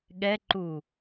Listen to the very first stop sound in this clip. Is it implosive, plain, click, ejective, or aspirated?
implosive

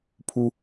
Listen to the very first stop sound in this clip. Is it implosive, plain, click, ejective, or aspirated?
aspirated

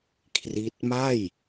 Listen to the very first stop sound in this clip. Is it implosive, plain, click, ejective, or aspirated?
aspirated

